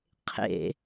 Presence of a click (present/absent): absent